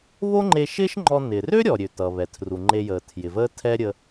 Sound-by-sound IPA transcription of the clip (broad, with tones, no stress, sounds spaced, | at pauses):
β o˥ ŋ͡ǃ e˧ ʃ ɪː˥ ʃ ŋ͡ǃ ɔ˧ n ɪː˩ r ø˥ ɾʲ ɔ˩ ɾʲ ø˩ t ʌ˩ β ɛ˩ tʰ r u˩ ŋ͡ǃ e˧ j əː˩ tʰ j ɪ˩ v əː˥ tʰ ɛ˥ ɾʲ ə˧